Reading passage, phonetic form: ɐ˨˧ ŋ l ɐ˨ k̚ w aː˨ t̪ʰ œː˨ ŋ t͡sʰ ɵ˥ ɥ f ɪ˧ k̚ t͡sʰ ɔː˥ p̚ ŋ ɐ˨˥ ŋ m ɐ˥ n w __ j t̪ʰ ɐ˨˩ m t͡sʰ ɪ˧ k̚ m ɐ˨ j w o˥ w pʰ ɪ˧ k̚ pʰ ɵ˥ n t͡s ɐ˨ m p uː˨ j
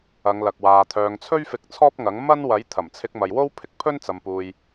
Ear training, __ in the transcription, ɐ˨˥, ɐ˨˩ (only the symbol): ɐ˨˥